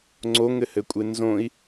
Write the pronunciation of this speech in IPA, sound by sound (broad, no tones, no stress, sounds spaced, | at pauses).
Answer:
ŋ͡ǀ o ŋ ɘ h ɘ kʷʼ e n z õ i̯